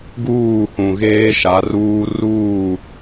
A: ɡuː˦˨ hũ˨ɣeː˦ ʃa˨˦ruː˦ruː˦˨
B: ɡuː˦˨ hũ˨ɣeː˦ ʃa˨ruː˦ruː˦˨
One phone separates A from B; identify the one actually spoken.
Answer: A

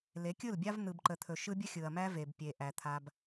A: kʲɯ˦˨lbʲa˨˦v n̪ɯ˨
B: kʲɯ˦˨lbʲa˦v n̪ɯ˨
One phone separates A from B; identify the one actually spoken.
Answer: B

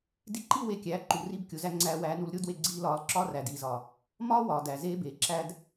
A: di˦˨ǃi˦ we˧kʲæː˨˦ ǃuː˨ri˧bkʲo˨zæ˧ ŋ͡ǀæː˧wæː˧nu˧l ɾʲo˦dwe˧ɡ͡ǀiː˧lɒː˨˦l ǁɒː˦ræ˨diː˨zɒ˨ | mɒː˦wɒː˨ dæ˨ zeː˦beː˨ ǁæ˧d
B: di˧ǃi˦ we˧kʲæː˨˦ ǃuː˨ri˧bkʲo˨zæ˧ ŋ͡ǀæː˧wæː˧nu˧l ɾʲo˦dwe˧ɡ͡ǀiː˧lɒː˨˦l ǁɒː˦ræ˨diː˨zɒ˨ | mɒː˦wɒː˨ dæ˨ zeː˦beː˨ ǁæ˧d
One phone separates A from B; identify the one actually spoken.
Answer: A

